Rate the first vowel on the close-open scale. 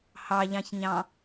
open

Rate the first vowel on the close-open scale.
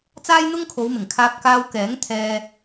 open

